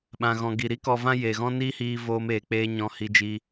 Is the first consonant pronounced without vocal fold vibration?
no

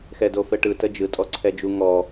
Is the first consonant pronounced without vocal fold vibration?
yes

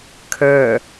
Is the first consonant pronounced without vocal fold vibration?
yes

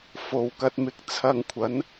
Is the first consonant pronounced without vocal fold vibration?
yes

